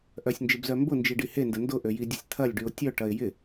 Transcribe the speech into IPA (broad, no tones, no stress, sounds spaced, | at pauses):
ʔ œ sʲ n d͡ʒ ɪ b z œ m b ʊ n d͡ʒ i ɖ i h e n d ə n d ʊ ʔ ø j i dʲ ə sʲ t̪ʰ ɐ lʲ ɖ y ʊ̯ tʲ œ ʈ ɐ ɪ̯ j ɪ